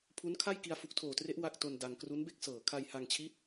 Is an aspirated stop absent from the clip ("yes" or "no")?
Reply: no